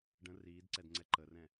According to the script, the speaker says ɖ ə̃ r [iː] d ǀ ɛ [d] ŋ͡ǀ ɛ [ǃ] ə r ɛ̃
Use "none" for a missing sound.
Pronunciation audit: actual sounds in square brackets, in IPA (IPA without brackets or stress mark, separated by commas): iː, d, ǃ